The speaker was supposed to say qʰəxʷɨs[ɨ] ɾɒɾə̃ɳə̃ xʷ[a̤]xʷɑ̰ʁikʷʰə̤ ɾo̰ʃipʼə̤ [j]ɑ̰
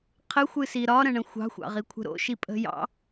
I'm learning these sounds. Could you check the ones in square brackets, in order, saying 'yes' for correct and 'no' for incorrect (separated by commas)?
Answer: no, no, yes